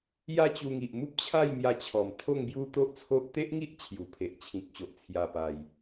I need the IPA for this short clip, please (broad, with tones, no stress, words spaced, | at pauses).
ja˥˧t͡ɕu˧ŋi˨ʔ mu˦p̚t͡ɕʰa˥˧jmja˧t͡ɕʰɔ˨˩m t̪ʰo˥˧ŋbju˦ t̪o˦ʔt͡sʰo˦ʔ t̪e˦ʔŋi˦ʔ t͡ɕʰju˨˩pʰe˨ʔt͡ɕʰĩ˨k̚ɕo˨ʔ t͡sʰja˨˩pa˨˩j